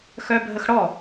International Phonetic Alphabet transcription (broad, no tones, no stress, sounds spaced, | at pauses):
x œ bʱ ə x ɽ ɔ